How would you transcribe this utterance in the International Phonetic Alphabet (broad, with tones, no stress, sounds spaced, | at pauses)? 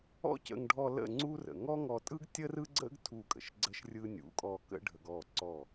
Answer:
ɔ̰˦ c ə̰˧ ŋ ɖʱ ɔ˧ l ə̰˦˨ ŋ͡ǀ u˦ r ə̰˨ ŋ ɔ˦ ŋ ɔ˧ tʼ ɯ˦ ɡ tʲ ə˦ r ɯ˦ ɡ͡ǀ ə̰˦ ɡ tʰ u˦˨ kʼ ə̰˨ ʃ ɡ͡ǀ ə˦ ʃ rʲ ɯ˦ nʲ ṵ˨˦ kʼ ɔ˧ k ə̰˦ ɖʱ ə˧ ɡ ɔ˦˨ ǀ ɔ˦˨